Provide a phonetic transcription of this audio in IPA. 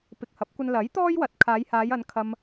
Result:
p ɪ˨ k̚ h ɐ˨˥ p̚ kʷ ɐ˧ n l ɐ˨˥ j t̪ ɔː˥ j w ɐ˨ t̚ kʰ aː˨˧ j h aː˨˧ j ɐ˨˧ n kʰ ɐ˧ m

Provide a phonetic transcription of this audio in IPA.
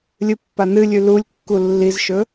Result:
lʲ ɨ pː a n ɨ lʲ ʉ l u lʲ kː u lː i z ʃ ɵ

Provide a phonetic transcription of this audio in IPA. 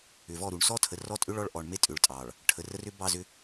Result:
ʏ˨ v ɔ˦˨ ɾ u˨ ɳ s ɔ˦ tʰ ə˨ r ɔ˦ tʼ ʏ˦ ɭ ɔ˦ ɭ ʔ ɔ˨ ɳ m e˦ tʼ ʏ˨ ɭ tʼ ɑ˨ ɭ | ʈʰ ə˨ r ə˦ r ʏ˦ b ɑ˦˨ z ʏ˦

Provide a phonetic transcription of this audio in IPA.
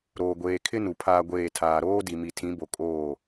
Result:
ɾ oː˨ ɡʷ eː˨ kʰ ɪ˦ n u˨ pʰ aː˦ ɡʷ eː˦˨ tʰ aː˨ ɾ oː˦ d i˨ m i˨ tʰ ĩ˨˦ b o˨ kʼ oː˦˨

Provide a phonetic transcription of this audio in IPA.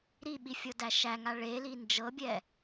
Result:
ɾ i ɓ i fʲ ɤ d æ ʃ æ ŋ a ɭ e l i n d͡ʒ ɤ bʲ ɛ

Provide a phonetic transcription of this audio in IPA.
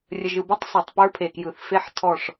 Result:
rʲ ə˨ ʒ ɯ˨ b o˦ tˤ sˤ ɐ˨ tˤ p ə˞˦ pʰ e˨ k j ɯ˨ θ f e˦ ħ tʰ ɔ˦˨ ʂ

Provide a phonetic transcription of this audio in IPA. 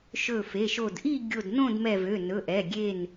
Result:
ʃ ɵ˧˩ f e˩˧˩ ʃ o˧˩ d ʔ i˥˨ ɡʲ o˧˩ d n õ˥˨ d m ɛ˧˩ v ø˩˧˩ n ɵ˩˧˩ ʔ ɛ˩˧˩ ɡʲ e˧˩ n

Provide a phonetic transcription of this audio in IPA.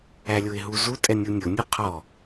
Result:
æ lʲ ʊ ɪ̯ ɦ u z u tʼ ɛ nʲ u nʲ ʊ nʲ u qʰ ɔ

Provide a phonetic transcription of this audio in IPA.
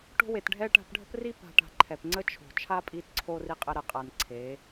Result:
ʈ o̤˦ w e˨ t ɖʱ ɛ˦ ʈ a̤˧ p ɖʱ ə̤˦ p r i˦ p a̤˧ ʈ a̤˧ ǃʰ ɛ˨ p ŋ͡ǀ ə˦ t͡ʃʰ o̤˨ t͡ʃʰ a˦ pʼ i˧ t ǀʰ o˧ r i˧ qʼ ə˧ ɾ ə˨ qʼ a˨ n ǀʰ e˨˦

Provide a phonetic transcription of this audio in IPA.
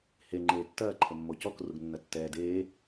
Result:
h e ŋ͡ǃ eː tː ɐː ǃʰ ə mː o c ɔ k r u ɡ nː ɐ tː ɛː d eː

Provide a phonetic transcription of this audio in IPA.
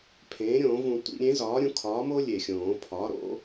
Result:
pʰ ẽː˩˥ ɾʲ õː˨˩˦ v ũ˨˩˦ tʷ ḭ˨˩˦ ɾʲ ẽ˩˥ z ɒː˩˥ ɾʲ ũ˩˥ kʰ ɒː˩˥ m o˦ lʲ e˨˩ xʲ õː˨˩˦ pʰ ɒ˩˥ ɾ o̰˦

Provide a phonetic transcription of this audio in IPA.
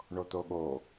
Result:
ɳ o t̪ o ɠ o

